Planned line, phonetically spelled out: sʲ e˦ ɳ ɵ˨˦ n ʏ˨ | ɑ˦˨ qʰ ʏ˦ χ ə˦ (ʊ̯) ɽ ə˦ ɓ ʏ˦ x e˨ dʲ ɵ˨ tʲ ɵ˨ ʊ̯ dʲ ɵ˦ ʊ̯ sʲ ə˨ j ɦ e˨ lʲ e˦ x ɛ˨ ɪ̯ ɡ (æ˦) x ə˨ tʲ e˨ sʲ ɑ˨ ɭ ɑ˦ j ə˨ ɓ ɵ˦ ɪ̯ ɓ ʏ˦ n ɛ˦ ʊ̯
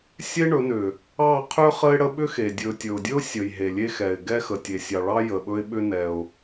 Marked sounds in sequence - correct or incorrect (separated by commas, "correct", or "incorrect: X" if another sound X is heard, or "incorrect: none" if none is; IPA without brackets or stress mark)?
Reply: incorrect: ɪ̯, incorrect: ɛ˦